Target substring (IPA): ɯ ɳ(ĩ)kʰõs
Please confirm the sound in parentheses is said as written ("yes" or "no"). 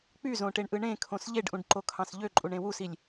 no